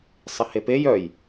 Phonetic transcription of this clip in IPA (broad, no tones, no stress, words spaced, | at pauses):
sˤɪhepej œj